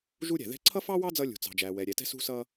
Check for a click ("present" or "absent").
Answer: present